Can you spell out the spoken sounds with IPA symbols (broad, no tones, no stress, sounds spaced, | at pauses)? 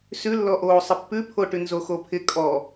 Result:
s ʉ lː ɔ ʔ oː sˤ ɪ pː ʉ pʰ o ʈ ʉ n z o x o pʰ ɪ kʼ ɔ